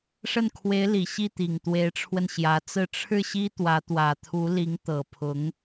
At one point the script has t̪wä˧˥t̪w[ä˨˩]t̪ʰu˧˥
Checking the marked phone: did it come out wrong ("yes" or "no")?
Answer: no